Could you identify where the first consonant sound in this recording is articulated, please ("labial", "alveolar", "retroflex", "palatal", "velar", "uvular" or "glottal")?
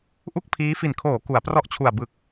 glottal